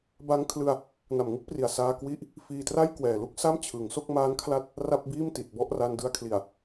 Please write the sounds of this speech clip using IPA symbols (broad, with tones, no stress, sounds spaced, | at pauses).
b a˦˥ ŋ kʰ l ɯ˧ a̯ | n a˨˩ m ŋ ɯ˥˩ k̚ p r i˨˩ a̯ s aː˧ k w i˦˥ ʔ | f iː˧ t r a˥˩ j k w ɛː˨˩ l u˥˩ k̚ s a˥˩ m t͡ɕʰ ɯ˩˦ ŋ s o˥˩ k̚ m aː˦˥ n kʰ l a˦˥ t̚ | r a˥˩ p̚ b iː˥˩ m t i˨˩ t̚ b ɔ˥˩ ʔ r a˧ n d ɯ˧ a̯ kʰ l i˨˩ a̯